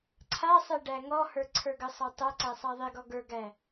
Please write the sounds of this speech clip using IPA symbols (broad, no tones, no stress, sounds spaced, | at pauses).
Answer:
ǀʰ a sˤ e ɖ æ ŋ ɔ h ə˞ ǀʰ ə˞ ɡ ə sˤ a tˤ æ ǀ æ sˤ a ðˤ i ɡ ɔ ɡ ə˞ ɡ æ